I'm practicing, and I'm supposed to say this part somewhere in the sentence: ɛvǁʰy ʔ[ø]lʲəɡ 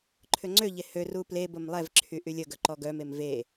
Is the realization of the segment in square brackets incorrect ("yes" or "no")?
yes